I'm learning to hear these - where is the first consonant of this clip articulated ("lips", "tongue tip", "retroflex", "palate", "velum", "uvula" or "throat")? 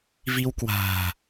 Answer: lips